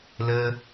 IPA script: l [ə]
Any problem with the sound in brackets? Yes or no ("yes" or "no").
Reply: no